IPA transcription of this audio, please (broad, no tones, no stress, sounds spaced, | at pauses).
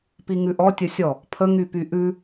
p i ŋ ʉ ʔ ɔ tʲ ə sʲ ɔ | pʰ ə ŋ y p y ʔ ʉ